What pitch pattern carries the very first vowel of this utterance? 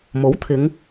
rising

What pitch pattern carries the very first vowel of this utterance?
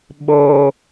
low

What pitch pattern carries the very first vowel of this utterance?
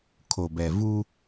low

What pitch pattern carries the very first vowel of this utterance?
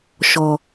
low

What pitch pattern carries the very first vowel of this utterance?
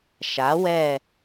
rising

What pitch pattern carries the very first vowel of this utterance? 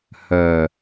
low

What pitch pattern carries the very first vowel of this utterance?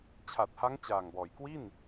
low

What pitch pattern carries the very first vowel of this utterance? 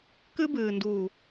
high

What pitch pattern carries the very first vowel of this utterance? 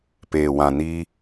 low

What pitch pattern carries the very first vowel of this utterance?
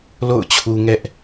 falling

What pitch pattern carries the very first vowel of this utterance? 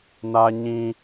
high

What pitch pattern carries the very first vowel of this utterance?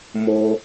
high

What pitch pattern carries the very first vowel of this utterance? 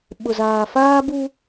low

